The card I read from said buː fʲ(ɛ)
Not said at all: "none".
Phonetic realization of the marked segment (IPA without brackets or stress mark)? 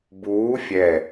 ɛ